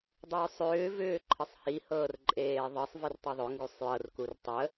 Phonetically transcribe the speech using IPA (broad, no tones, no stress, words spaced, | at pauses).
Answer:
dˤʏːsˤʏːvʏː ǃʰəsˤhihɤːr ǃʼeːðˤɤsˤ vertˤuðˤʏ ŋɡusˤjɤr kurtˤə